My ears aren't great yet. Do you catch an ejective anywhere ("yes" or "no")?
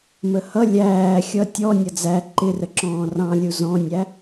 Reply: no